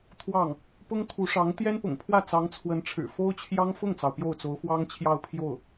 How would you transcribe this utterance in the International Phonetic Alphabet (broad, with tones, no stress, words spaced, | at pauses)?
t̪ʰwɑ˥˩ŋ | pʊ˥ŋt̪ʰu˧˥ʂɑ˧˥ŋ t̪jɛ˥npʊ̰˨˩ŋpʰwä˥˩ t͡sɑ˧˥ŋt͡sʰwə˧˥nʈ͡ʂʰɻ̩˨˩ fo˥ʊ̯t͡ɕʰjɑ˥ŋ fʊ˥˩ŋt͡sɑ˩ʊ̯ pjo˥˩ʊ̯t͡so˧˥ʊ̯ fwɑ˥ŋt͡ɕʰjɑ˥˧ʊ̯ pʰjo˥˩ʊ̯